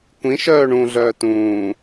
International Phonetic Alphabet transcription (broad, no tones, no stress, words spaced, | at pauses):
kʷĩ ʃœːɳũ ɮœːtũː